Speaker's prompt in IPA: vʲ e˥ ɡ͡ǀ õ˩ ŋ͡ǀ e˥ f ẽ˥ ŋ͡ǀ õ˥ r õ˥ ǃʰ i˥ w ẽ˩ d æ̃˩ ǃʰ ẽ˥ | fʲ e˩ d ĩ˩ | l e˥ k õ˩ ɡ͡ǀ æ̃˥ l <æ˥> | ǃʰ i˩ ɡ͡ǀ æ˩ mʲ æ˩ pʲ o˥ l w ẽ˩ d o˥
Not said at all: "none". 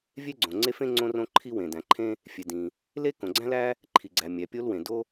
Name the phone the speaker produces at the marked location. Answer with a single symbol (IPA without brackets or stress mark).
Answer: æ˥